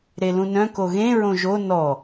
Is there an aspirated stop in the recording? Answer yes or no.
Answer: no